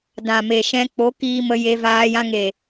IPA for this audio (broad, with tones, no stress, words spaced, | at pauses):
dã˨me˨ ʃɛ̃˧k͡po˨˦kiː˧ mə˧je˧vaː˧ jã˧ŋe˨